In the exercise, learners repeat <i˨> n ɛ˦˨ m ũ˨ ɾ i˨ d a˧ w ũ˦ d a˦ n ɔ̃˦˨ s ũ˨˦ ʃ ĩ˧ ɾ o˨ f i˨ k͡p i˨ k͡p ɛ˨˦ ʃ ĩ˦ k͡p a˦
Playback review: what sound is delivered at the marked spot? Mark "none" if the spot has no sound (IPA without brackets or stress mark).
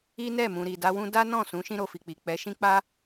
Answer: i˦